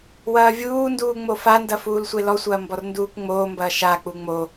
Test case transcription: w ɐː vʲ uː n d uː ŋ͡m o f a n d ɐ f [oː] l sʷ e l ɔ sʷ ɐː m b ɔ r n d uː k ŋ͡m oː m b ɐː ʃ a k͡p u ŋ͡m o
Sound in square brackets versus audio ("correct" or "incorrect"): incorrect